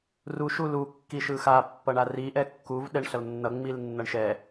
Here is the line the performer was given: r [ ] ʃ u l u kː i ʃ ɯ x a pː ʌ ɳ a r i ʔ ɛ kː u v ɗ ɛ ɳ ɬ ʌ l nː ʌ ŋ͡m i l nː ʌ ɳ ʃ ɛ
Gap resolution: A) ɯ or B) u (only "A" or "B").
B